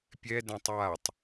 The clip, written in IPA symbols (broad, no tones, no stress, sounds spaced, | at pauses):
pʲ ɛ d ɛ̃ tˤ j a tˤ